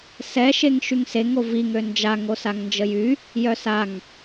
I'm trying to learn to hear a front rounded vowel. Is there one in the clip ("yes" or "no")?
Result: yes